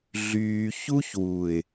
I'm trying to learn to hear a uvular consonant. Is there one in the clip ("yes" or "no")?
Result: no